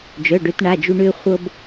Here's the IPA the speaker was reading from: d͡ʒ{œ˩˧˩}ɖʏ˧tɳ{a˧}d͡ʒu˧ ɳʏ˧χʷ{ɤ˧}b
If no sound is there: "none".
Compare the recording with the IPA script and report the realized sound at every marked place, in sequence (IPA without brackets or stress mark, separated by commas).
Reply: œ˩˧˩, a˩˧˩, ɤ˧